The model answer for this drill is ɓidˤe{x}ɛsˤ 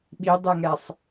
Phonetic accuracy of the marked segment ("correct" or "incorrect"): incorrect